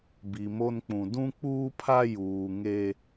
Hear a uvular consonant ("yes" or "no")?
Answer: no